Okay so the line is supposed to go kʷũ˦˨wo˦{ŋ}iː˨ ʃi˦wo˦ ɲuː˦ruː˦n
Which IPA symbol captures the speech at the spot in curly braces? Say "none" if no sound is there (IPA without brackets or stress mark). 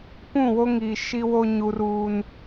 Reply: ŋ